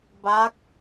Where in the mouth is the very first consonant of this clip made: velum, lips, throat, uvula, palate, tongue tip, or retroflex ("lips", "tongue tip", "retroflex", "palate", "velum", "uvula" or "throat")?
lips